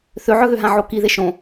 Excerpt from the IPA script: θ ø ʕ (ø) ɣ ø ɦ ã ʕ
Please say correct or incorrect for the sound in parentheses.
incorrect